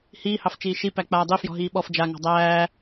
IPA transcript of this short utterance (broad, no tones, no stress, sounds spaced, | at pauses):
h iː h ɑ f t͡ʃ iː ʃ i p æ k͡p aː dˤ i f j ɔ̤ ɦ iː ɓ ɔ f d͡ʒ a ŋ ɑ̤ dˤ æː